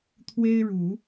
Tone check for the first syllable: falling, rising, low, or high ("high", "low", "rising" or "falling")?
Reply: high